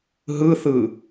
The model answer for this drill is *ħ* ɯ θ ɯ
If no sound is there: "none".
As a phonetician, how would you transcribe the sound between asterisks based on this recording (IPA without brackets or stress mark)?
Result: ɦ